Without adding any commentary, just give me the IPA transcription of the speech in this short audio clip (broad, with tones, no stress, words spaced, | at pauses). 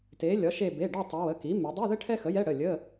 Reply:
te˩˧ lʲɒ˩˥ʃe˦˨ be˩˧˩ɖɒ˦˨tˤɛ˩˧ wə˩˧˩ki˩˥ me˩˧dˤi˧˥˧ðə˥ ʈʰɛ˥xə˩˥jɛ˧˥˧ ɽə˩˧˩lʲə˧˥˧